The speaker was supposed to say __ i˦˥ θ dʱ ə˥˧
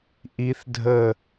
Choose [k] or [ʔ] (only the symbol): ʔ